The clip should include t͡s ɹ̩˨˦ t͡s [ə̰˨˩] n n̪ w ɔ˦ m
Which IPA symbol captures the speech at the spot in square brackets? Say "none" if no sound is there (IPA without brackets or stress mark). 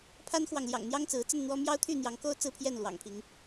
ə˥˨